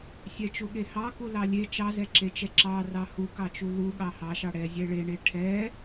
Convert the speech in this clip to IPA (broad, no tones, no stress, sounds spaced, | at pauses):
sʲ ɛ t͡ʃ u ɠ e h ɑ k u l ɑ lʲ e t͡ʃ ɑ z ɛ ǁ e t͡ʃ ɛ ǁ ɑ r ɑ h u k ɑ t͡ʃ u l u ɠ ɑ h ɑ ʃ ɑ ɽ ɛ zʲ ɛ ɭ e ɳ e ʈʰ ɛ